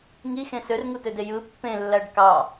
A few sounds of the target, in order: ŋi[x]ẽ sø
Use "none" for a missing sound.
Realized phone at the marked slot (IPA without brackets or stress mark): x